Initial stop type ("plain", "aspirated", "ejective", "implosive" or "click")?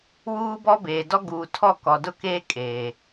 plain